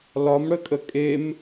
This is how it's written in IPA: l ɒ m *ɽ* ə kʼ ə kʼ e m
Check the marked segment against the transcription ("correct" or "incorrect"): correct